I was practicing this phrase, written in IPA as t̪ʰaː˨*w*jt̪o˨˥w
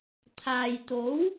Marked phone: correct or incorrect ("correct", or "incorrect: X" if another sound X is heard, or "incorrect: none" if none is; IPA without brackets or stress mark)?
incorrect: none